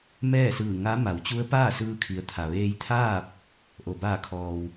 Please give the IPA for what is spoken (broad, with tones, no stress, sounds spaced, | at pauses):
m ɛː˥˨ s ɯː˧˩ ŋ a˧˥ m a˩˧ w t͡ɕ u˧˥ ə̯ p aː˥˨ s ɯː˧ kʰ i˩˧ ə̯ t̪ʰ a˩ ʋ eː˧ j t̪ʰ aː˥˨ p̚ | ʔ o˩ b aː˧˩ kʰ ɔː˩ w